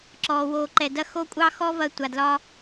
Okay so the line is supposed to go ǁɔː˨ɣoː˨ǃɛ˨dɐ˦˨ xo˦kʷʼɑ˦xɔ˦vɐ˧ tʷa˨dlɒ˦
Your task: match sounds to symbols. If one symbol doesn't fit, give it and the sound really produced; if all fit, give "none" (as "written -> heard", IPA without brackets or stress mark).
ɣ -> w